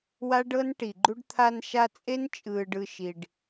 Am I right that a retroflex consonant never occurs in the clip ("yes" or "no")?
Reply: no